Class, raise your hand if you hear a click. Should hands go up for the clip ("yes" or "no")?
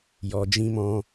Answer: no